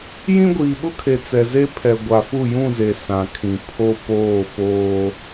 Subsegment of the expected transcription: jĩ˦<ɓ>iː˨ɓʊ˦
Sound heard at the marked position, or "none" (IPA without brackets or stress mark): ɡʷ